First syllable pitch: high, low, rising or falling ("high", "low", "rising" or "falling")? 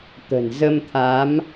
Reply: low